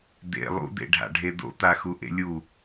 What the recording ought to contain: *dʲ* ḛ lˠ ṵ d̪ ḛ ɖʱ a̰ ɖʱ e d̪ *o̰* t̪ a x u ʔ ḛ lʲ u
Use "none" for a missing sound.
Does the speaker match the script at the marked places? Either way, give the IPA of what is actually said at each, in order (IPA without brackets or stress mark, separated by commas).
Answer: d̪, o̰